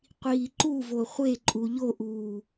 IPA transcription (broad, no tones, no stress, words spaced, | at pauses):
qʷiːǃu voχʷeǃʼu ʎoʔuː